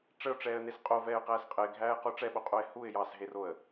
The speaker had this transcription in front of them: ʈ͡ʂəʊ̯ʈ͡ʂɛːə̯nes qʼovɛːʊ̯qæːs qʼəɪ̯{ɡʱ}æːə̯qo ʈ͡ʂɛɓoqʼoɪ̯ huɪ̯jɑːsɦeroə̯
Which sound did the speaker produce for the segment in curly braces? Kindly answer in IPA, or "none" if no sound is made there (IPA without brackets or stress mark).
ɡʱ